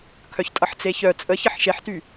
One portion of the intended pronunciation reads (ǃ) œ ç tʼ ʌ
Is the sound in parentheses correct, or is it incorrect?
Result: incorrect: kʰ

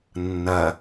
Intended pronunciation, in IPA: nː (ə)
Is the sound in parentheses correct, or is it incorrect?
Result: incorrect: ɐ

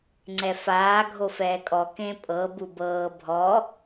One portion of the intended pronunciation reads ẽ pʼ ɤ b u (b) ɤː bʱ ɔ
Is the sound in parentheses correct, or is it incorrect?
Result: correct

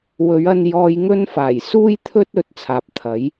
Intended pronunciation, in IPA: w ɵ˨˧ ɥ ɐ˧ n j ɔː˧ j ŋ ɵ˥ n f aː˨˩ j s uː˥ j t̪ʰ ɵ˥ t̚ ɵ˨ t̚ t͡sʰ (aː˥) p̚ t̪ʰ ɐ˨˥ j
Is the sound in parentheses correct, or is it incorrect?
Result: incorrect: aː˨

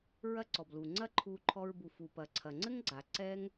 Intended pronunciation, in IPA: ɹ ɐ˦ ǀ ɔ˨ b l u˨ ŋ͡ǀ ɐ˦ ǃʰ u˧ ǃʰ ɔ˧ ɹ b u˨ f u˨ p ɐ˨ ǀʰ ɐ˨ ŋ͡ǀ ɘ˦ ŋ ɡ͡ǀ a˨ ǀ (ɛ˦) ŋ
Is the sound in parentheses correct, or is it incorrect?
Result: correct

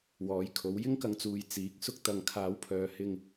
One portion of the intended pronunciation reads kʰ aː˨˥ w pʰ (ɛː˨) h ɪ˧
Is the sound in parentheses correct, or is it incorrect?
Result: incorrect: œː˨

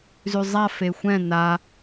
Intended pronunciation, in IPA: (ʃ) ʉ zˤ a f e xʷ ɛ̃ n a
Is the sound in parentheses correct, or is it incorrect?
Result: incorrect: z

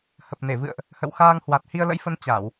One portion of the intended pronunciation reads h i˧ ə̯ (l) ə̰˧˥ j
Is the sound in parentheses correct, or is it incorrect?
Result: correct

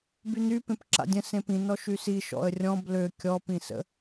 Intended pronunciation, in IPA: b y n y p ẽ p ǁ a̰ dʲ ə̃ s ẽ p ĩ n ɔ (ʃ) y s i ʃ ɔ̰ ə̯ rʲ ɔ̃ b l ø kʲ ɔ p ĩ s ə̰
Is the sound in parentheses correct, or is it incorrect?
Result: correct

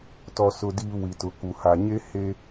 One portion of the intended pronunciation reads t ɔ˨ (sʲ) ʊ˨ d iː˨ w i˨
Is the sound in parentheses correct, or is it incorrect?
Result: incorrect: s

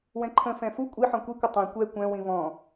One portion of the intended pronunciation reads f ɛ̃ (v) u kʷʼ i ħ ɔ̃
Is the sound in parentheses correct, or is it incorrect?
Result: incorrect: f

